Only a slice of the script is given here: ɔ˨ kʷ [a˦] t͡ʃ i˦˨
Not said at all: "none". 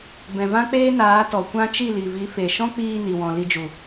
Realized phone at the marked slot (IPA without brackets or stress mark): ã˦